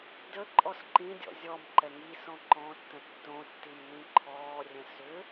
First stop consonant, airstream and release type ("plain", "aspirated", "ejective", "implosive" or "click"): plain